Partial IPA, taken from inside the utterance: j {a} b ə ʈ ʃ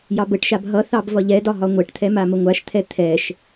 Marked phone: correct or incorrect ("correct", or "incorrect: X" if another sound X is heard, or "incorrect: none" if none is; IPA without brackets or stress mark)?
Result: incorrect: ɑ